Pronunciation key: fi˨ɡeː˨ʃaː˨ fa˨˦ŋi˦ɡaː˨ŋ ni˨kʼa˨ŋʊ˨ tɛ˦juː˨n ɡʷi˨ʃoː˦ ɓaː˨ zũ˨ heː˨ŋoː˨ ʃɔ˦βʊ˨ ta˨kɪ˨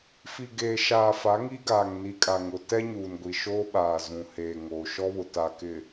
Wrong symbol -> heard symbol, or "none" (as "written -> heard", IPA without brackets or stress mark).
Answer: j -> ɲ